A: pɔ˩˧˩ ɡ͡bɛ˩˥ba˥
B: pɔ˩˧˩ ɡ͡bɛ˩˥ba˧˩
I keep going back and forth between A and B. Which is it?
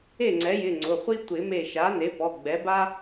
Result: A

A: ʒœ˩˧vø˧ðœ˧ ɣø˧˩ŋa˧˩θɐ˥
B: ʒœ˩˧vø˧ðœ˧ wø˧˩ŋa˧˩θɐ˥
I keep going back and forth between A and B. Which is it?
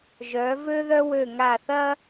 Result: B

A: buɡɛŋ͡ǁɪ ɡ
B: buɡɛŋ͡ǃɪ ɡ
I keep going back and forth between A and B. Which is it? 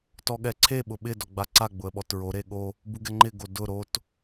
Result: B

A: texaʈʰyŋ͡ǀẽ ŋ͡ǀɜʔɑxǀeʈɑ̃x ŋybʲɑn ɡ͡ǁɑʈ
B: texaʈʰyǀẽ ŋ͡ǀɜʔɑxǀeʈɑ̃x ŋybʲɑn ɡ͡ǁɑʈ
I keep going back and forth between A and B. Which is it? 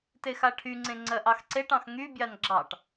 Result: A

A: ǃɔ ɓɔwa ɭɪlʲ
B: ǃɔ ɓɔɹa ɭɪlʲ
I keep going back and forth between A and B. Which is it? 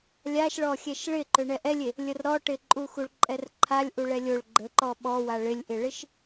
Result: A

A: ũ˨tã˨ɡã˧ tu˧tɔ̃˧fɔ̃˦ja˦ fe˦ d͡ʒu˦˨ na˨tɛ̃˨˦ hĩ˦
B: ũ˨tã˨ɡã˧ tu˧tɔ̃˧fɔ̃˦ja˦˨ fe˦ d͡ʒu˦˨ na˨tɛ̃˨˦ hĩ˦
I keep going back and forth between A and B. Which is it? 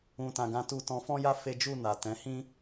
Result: A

